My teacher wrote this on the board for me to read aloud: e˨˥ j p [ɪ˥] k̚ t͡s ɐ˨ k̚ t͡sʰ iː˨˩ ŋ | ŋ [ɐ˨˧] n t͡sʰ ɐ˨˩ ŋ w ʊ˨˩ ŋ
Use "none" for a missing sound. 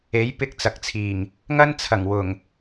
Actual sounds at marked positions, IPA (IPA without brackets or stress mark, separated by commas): ɪ˥, ɐ˥